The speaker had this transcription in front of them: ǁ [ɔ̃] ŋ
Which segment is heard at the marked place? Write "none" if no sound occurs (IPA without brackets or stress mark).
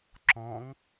ɔ̃